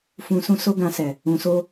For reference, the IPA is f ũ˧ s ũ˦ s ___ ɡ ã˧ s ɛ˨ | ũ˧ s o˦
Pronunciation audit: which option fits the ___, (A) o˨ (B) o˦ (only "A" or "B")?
B